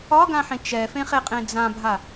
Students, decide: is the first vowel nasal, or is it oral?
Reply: oral